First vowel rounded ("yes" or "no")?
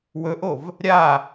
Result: yes